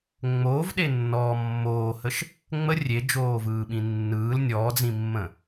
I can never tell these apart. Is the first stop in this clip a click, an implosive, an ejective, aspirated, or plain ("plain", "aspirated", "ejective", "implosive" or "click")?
implosive